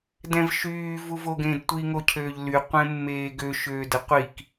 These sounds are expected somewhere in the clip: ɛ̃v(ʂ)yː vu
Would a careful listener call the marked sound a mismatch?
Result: yes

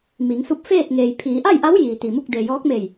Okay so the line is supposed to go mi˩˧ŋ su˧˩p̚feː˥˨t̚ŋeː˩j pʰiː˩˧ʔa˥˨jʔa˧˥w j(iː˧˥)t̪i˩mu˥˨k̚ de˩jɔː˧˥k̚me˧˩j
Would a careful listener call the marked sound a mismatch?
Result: yes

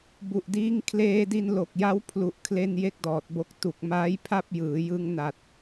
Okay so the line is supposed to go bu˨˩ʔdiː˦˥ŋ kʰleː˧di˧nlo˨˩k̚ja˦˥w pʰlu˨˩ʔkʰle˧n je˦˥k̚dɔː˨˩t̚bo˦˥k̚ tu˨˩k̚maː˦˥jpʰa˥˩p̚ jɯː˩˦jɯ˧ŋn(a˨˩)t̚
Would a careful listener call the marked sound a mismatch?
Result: no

